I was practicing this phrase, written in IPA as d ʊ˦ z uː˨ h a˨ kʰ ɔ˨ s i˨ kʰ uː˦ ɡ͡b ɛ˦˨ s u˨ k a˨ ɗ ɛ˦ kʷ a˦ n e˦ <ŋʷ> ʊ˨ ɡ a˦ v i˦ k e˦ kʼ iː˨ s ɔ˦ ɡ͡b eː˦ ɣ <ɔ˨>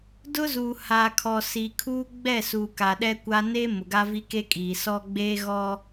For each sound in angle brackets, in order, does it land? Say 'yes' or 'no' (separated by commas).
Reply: no, no